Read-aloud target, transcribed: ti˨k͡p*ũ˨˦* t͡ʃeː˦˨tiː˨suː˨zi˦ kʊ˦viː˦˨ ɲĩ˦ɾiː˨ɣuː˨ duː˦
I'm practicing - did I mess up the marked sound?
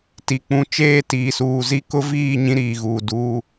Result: no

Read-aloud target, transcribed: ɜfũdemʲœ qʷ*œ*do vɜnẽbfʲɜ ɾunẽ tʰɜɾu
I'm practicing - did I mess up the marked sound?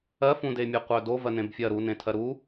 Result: no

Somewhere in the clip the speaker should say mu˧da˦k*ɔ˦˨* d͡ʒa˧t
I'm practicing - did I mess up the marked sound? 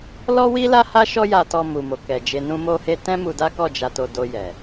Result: no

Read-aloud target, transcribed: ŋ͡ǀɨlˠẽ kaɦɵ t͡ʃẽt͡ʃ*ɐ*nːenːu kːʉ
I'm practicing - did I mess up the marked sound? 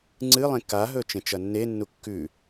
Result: no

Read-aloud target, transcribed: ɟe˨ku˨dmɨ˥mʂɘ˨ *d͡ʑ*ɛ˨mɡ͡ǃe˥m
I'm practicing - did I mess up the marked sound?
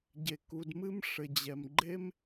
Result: no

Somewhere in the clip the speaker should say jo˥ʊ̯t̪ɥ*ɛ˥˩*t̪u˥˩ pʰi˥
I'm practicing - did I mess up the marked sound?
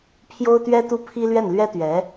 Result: yes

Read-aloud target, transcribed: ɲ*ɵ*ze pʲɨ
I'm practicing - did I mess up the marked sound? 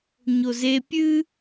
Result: yes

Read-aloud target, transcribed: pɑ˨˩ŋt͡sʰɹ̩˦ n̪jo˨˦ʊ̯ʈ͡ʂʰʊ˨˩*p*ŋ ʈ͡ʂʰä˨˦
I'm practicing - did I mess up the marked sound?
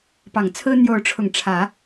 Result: yes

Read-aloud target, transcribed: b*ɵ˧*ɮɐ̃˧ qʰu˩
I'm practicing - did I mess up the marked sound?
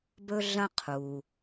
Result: no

